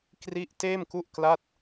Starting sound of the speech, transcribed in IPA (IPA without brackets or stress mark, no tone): k